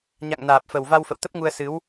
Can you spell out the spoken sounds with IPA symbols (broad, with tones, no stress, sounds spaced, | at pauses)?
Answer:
ɲ a̰˧˨ ŋ n aː˨˩ p̚ f ə˨˩ w v a˧ w f ə̰˧˨ w t̪ ə˦˥ p̚ ŋ u˧ ə̯ s ɨ˨˦ w